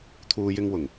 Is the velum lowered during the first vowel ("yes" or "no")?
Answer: no